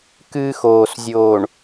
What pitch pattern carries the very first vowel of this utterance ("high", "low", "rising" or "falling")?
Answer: high